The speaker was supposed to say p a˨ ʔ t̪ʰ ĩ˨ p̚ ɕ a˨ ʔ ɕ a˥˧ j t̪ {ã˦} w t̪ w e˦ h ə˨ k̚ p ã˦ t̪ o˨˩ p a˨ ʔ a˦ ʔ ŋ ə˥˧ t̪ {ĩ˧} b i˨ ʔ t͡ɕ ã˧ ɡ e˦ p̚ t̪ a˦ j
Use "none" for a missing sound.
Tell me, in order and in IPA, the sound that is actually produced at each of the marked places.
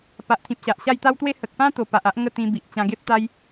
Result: a˦, ĩ˧

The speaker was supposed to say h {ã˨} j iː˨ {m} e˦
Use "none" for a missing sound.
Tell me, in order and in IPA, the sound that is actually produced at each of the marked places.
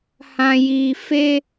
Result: ã˨, f

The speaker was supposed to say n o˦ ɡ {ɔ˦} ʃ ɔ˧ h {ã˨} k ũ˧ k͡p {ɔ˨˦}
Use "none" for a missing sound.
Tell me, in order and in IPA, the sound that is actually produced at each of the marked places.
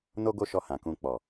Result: o˦, ã˨, ɔ˨

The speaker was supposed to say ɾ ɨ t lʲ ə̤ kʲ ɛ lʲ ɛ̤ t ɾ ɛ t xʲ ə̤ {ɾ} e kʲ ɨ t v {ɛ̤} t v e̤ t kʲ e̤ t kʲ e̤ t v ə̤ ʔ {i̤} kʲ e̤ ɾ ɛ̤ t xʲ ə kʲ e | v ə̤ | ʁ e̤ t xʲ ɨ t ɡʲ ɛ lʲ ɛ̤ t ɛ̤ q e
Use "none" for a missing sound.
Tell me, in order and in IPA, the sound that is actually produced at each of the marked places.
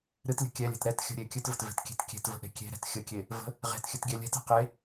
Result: ɾʲ, ə̤, e̤

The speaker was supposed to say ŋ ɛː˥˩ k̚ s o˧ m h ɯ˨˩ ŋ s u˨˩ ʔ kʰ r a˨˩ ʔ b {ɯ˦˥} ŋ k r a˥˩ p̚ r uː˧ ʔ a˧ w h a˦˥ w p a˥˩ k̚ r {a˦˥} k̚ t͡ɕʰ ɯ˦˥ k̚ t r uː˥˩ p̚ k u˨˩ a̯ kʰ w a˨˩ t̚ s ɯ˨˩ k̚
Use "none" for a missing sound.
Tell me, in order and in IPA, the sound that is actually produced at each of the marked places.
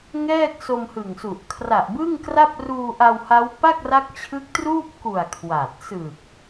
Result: ɯ˥˩, a˦˥

